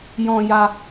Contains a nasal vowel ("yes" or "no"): yes